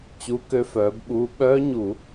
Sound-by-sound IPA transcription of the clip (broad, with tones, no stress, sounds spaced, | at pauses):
t͡ɕ u˨˥ k ø˧ f œː˩˧ b ɓ uː˧ ɓ œː˦˥ ɲ u˧˩˧